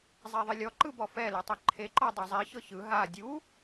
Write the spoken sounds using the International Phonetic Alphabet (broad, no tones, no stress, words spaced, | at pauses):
zˤɛðˤilʲɔ ǃɯbɔfɛ lɛtˤɛǃʰe ǃɔdˤozˤi çɤçɯ ɦa dʲu